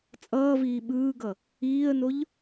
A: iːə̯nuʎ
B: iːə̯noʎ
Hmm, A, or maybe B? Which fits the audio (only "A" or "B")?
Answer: B